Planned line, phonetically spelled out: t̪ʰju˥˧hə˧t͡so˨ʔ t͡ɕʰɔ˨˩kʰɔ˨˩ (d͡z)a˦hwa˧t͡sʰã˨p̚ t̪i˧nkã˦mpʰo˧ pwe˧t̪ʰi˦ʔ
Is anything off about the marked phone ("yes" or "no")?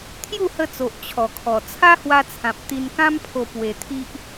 yes